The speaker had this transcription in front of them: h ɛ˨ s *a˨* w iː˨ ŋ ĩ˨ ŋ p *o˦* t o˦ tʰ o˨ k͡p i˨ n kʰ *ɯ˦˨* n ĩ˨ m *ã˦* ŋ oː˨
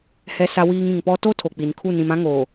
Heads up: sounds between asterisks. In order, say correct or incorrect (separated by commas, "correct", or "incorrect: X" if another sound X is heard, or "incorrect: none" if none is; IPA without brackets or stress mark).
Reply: correct, incorrect: ɔ˦, incorrect: u˦˨, correct